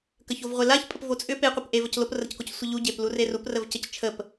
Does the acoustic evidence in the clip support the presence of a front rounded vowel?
yes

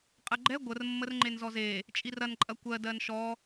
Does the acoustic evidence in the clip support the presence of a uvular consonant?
yes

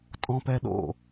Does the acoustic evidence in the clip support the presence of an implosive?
yes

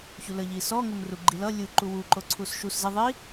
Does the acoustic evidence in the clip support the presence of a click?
yes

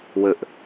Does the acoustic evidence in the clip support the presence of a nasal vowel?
no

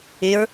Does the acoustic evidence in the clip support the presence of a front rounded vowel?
yes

